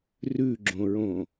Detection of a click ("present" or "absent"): present